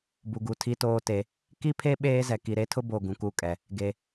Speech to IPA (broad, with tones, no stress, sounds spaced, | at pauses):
b u˨ ɡ u˨ tʰ i˦ t oː˦ t e˨˦ | k i˦ pʰ e˦ ɓ eː˦ z ɛ˨ k i˨ ɾ e˦ tʰ ʊ˦ b o˨ ɡ ũ˨ k u˦˨ kʼ ɛ˨ | ɡ e˨